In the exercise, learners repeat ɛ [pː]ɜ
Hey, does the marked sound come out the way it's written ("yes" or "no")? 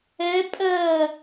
no